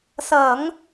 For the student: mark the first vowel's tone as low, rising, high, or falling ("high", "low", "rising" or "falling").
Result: low